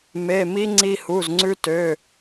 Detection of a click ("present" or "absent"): present